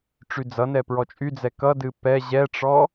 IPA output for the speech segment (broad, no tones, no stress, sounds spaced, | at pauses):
ʈ͡ʂ y d͡z ʌ n ɛ p ɹ ɔ t͡ʃʼ y d͡z ɛ k ʌ d ɨ p ɛ ʑ ɛ ʈ͡ʂ ɔ